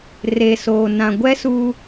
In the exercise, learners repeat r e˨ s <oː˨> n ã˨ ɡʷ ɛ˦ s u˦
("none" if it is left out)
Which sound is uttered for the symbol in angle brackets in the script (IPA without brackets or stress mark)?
oː˨